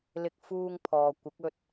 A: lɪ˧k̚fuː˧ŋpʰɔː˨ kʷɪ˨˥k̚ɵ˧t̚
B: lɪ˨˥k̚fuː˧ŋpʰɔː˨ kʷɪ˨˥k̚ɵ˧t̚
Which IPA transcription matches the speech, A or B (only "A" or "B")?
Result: A